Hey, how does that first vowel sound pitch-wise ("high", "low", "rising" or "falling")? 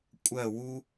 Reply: falling